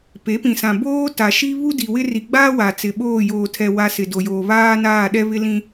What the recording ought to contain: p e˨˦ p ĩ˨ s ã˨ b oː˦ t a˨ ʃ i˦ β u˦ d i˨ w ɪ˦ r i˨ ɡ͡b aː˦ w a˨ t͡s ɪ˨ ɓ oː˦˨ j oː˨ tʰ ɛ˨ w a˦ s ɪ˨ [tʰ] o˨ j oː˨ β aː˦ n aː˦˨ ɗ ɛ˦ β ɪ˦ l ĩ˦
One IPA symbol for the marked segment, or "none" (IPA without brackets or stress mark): d